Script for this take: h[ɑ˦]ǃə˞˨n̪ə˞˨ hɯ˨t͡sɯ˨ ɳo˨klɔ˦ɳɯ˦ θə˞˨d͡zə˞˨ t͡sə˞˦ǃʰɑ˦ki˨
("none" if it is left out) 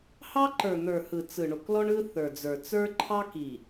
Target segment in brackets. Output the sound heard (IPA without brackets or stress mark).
ɑ˦